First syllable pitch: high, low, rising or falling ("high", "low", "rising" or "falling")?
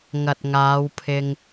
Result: low